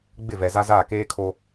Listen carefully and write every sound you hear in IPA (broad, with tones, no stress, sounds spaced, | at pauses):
ɡ͡b ɪ˦˨ v ɛ˨ z a˦ z aː˦˨ k eː˦ kʰ o˦